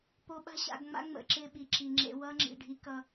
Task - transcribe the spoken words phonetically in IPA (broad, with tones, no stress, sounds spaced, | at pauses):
p o˨ ɓ a̤˦ ɕ a̰˨ ɡ ŋ͡m a̰˦ ŋ͡m ə̰˨ ǁ ɪ˦˨ ɓ i˨ ǁ i˨ ŋ͡ǁ ḛ˦ w ʌ˦ ŋ͡ǁ ḭ˨ ɖʱ i˦ k ʌ˦